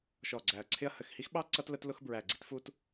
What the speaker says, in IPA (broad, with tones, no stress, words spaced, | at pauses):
ʃɔ˧˩ɡ͡ǀæ˧˩ɐ̯ǀʰɪ˥ɐ̯ hə˧˩xhi˥xɓɑ˥ ǀʌ˥tlə˥tlʊ˥xbɹæ˧˩ ɡ͡ǀi˥tfu˥t